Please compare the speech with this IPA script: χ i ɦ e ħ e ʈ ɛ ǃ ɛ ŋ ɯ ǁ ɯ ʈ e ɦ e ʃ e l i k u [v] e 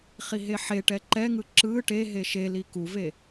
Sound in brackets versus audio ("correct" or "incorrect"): correct